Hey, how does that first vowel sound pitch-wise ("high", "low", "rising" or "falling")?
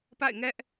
falling